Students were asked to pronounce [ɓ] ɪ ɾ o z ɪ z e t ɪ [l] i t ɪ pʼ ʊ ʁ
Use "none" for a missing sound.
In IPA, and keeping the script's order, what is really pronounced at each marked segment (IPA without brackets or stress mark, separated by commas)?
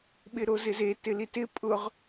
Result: ɓ, l